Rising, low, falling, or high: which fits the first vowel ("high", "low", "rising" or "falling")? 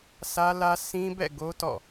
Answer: high